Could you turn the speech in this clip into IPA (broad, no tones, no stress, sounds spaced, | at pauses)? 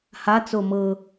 h a t͡s o m ɤ